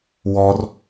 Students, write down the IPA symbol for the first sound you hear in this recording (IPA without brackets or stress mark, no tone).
w